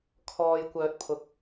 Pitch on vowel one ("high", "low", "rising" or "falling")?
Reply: low